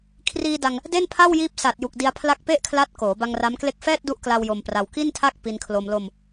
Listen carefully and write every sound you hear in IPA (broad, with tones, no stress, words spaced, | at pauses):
kʰriː˧da˧ŋ | de˥˩npʰa˥˩wjiː˦˥p̚ sa˨˩t̚ju˨˩k̚ di˧a̯pʰla˦˥k̚pe˥˩ʔkʰla˦˥t̚ koː˩˦ ba˧ŋ ra˦˥mkle˥˩k̚ fɛː˥˩t̚du˦˥ʔkla˧w jo˧mpra˧w ki˥˩ntʰa˥˩k̚ pi˧nkʰlo˧m lo˧m